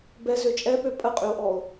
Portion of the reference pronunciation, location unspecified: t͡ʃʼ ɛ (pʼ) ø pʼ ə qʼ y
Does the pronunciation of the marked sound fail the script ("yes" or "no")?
yes